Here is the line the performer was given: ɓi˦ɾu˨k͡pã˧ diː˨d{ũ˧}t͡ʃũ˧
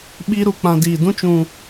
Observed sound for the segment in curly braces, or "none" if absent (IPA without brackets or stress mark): ũ˦